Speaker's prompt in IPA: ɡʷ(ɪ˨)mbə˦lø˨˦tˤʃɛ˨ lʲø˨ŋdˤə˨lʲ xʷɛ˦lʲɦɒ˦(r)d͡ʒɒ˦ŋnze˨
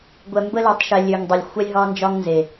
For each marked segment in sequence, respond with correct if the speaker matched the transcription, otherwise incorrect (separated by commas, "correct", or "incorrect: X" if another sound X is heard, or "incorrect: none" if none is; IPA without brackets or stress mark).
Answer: incorrect: ɛ˨, incorrect: n